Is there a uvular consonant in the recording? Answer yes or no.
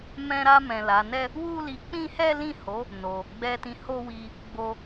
no